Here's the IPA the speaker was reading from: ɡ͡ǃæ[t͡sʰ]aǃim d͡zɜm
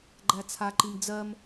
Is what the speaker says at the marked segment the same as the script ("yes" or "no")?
yes